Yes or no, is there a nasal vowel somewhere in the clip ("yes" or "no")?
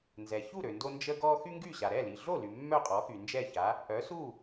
no